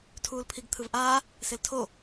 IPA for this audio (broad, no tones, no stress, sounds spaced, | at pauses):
tʰ uː l pʰ i ɡ t̪ʰ ɯ v ʔ aː | s e l tʰ o